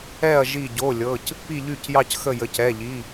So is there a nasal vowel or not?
no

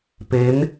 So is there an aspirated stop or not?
no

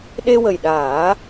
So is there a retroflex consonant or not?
no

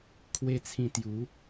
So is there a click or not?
no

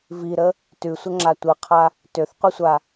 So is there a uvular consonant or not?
yes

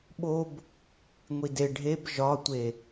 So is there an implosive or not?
yes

